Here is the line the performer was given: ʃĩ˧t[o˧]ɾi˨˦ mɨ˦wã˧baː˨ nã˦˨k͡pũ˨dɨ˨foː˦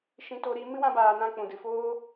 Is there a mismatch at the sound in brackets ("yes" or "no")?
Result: no